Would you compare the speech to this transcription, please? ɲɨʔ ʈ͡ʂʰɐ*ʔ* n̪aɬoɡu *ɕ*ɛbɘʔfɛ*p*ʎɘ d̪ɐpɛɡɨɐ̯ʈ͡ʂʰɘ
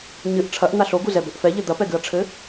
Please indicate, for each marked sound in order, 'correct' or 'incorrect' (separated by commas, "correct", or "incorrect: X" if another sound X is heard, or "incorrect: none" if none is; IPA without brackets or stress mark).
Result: correct, incorrect: z, incorrect: none